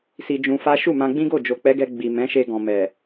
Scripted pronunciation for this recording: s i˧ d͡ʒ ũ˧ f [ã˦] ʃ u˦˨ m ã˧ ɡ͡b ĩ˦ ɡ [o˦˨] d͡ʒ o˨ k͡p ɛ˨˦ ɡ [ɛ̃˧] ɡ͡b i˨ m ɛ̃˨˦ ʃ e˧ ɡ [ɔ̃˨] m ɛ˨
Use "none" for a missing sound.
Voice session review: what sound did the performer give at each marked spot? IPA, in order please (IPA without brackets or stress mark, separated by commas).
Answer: a˦, o˦˨, ɛ˧, ɔ̃˨